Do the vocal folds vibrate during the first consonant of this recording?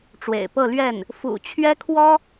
no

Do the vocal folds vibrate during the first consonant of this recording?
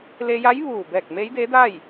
yes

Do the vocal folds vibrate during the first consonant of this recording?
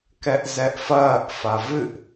no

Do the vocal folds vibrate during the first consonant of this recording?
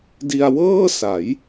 yes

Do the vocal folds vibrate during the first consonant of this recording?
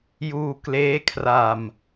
yes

